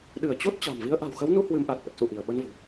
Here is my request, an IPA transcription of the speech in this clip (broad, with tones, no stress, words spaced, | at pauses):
ɗɨ˧˩ə̯t͡ɕo˦˥t̚ t͡ɕa̤˨˩mvi˧ə̯ ʔa̤˨˩wxə˨˦wnu˧ hwɨ˧mʔa˨˩t̚ʔə˨˩t̚sṵ˧˨ ʔi˧˩ə̯ɓə˧nvo̤˨˩